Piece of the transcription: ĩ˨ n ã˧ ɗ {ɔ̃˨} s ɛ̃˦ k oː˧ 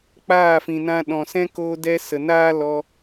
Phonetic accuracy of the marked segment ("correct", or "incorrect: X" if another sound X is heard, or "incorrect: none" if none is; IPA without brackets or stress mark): correct